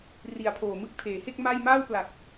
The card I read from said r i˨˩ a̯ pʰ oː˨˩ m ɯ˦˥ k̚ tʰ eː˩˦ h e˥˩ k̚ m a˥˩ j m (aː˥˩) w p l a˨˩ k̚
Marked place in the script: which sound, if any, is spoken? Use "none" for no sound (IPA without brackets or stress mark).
aː˥˩